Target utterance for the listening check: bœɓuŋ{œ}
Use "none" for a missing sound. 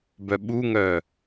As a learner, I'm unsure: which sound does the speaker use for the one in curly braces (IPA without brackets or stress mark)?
œ